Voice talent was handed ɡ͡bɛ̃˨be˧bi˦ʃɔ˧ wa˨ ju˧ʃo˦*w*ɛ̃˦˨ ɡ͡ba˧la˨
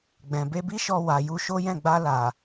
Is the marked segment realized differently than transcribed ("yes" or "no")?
yes